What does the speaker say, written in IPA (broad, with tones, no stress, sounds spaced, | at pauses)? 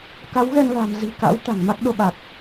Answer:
k a˨˦ w ɣ ɛ˧ n l a̤˨˩ m z i̤˨˩ k a̰˧˥ w t̪ a̤˨˩ ŋ m a˦˥ k̚ ɗ o˧ ɓ a˨˩ k̚